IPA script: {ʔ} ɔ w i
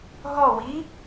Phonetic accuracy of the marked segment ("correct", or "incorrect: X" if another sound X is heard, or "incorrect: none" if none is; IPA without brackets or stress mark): incorrect: ɦ